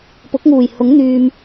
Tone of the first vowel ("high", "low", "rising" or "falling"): rising